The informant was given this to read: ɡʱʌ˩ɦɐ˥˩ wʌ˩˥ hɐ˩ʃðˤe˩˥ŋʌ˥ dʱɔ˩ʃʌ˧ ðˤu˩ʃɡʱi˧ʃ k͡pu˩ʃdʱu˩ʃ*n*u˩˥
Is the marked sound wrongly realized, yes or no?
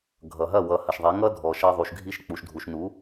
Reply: no